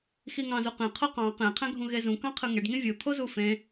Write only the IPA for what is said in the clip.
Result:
xiŋɑ̃zuqẽ qʰoqɑ̃ qẽ qʰæ̃ɡʱũɣezũ kɑ̃qʰɯŋeɖ ŋĩvʲɯ t̪ʰozufẽ

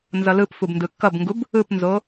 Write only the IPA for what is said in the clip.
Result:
nzʌlɯpfub ndɯkːʌbŋɡub | ɯpnzo

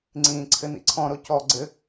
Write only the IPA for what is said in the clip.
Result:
ŋ͡ǀĩːǀʰɘnḭǀʰɔ̃ ɾocɔ ɡ͡ǀɘ

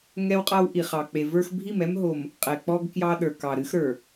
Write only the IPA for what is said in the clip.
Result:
ŋɛ˦wqʼa˦w ʔi˨χɑ˨k͡pe˨ və˞˦x bʱi˦˨mɛ˦mɦo˨m | qʼɛ˨k͡pɔ˦ɡ kjɑ˦ɗə˞˨ kɑ˨ɾɨ˦xɾə˞˨

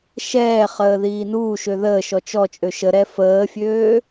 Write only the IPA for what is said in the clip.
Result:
ʃɛːχəːðiː nuːʃø ðəːʃɔ t͡ʃɔt͡ʃʼø ʃəɾɛ fəːfʲøː

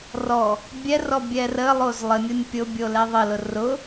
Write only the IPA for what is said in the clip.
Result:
rɔ | bʲɛrɔ bʲɛrəlˠoz lˠənʲonʲ pʲʊ bʲolɛðˤəlʊ rʊ

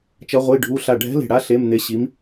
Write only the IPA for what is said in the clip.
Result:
t͡ʃʌ˧˥ʁʷi˧˥˧ɖʱu˧˥˧ ɬa˧˩ɖʱɛ̤˧˥le̤˧˩ɽa˧˥ ɬe˧˥˧mn̪e˧˥ɕi˧˥m

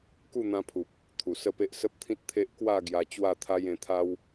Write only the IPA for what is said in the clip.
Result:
ku˥˧n̪ã˧pʰu˨p̚ | t̪ʰu˨˩sə˥˧pe˦ʔ sə˦p̚t̪ʰĩ˦t̚t̪ʰe˦ʔ kwa˥˧ ɡja˧t͡ɕwa˥˧t̪ʰa˦j ẽ˧t̪ʰa˦w

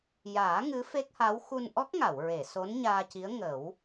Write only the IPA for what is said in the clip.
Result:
jaː˨˩˦ ŋɨ˧˥fe˦˥k̚ha˧˥w xu˧nʔɔ˦˥k̚ŋa˨˩˨wɹe˨˩˨ so˧˥nɲaː˧ci˧˥ə̯ ŋə˨˩˦w

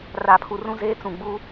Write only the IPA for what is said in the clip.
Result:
ra˨pʰu˨rũ˦zeː˦ t͡sũ˨ ɡ͡buː˦

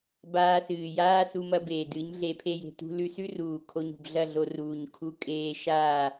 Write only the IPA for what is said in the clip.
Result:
baː˧sɨː˨jaː˦ su˧mɐ˧beː˨dɨ˨˦ɲ ɮe˧pʰe˦je̤˧ tṳ˧lʉ˧sʉ˦ruː˨ kʰo˧ɲṳ˨b ɮɐ˦˨ɮo˧ ruː˨ɲkʰu˧ kʼeː˧ʃaː˦˨

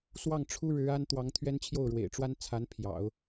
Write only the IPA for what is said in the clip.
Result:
swɑ˥˩ŋʈ͡ʂʰu˥ ɻɻ̩˧˥a˥n t̪wɑ˧˥ŋt̪ʰɥɛ˥nt͡ɕʰjo˥˩ʊ̯ɻwḛ˨˩ɪ̯ ʈ͡ʂwa˥nt͡sʰa˧˥n pʰjɑ̰˨˩˦ʊ̯

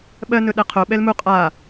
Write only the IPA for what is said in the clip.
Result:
ɓɜnɵ ɗɛqʰo ɓɛlmu qʼa

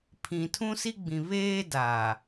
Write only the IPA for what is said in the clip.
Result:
pʰĩ˨tʰũ˦ si˦ɡ͡bĩ˨ βeː˦da˨

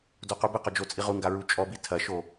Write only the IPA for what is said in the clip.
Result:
doqubɨqɔ d͡ʒot͡sʼiʁuŋɡa ɹut͡ʃʼɔbi tʰɐʃo

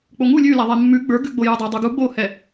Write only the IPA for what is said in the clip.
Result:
k͡poŋu lʲʉlaðˤɛ mːʉ ɡ͡bə˞ɡʉɡ͡bo judˤadˤuɡu ɡ͡bohɛ

